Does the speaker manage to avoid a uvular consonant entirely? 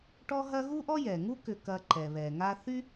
yes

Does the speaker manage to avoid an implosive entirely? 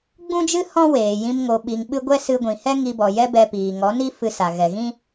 no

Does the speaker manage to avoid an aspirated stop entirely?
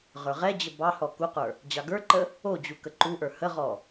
yes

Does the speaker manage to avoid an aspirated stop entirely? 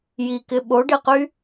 yes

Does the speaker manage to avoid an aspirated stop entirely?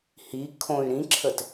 no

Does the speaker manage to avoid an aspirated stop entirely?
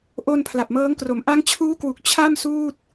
no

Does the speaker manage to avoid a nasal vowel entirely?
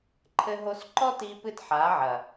yes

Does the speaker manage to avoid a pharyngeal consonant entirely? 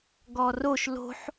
no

